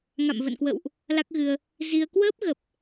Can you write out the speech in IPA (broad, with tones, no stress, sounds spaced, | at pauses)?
ŋ a̰˧˨ m v ə̰˧˨ n k w ə̰˧˨ w ʔ | l a˦˥ k̚ ɣ ɨ˧ ə̯ | z i˧ ə̯ k w əː˦˥ p̚ ɣ ə˨˩ p̚